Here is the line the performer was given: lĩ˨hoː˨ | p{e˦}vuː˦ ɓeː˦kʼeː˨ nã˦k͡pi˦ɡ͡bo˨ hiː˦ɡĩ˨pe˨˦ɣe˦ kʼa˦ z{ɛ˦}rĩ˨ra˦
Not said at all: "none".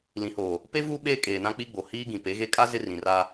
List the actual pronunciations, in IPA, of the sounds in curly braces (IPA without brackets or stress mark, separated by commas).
e˦, ɪ˦